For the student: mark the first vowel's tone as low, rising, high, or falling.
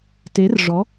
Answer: rising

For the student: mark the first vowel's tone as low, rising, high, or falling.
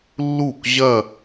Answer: falling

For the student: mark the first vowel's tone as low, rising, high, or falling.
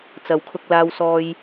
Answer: low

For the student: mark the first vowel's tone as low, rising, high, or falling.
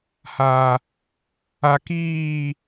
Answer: low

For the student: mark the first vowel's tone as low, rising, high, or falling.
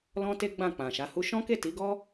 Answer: high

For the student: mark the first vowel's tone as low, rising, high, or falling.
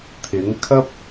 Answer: rising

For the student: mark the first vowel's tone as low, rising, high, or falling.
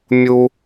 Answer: high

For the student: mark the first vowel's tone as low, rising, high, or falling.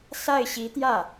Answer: falling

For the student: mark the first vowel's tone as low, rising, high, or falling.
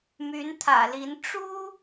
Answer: rising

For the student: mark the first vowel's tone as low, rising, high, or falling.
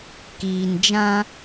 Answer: low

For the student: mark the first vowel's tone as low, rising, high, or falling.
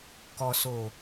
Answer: low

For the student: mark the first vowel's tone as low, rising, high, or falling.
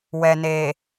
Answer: low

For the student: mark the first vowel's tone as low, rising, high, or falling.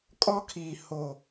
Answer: high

